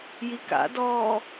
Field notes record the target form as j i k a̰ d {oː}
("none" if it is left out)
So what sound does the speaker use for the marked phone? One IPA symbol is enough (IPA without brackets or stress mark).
ɔː